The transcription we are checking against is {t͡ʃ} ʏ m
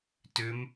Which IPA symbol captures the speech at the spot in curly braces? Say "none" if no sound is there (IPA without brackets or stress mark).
t